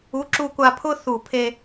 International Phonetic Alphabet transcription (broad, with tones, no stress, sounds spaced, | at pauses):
u˨˥ ǁ u˧ kʷ a˧ pʰ ʊ˥ θ u˧˩ pʰ e˧